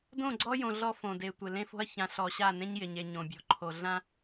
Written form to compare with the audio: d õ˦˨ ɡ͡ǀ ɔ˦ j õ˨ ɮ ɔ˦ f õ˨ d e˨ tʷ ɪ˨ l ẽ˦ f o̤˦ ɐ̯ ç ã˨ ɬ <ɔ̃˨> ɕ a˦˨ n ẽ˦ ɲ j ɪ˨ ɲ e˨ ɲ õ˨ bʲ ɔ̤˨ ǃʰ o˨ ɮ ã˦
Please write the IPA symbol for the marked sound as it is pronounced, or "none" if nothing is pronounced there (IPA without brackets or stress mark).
ɔ˨